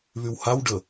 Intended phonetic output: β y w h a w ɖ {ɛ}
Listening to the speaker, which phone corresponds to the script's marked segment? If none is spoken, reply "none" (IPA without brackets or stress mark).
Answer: ə